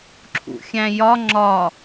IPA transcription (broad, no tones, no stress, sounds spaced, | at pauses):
ǁʰ ṵ xʲ æ̃ j ɒ ŋ͡ǁ ɒ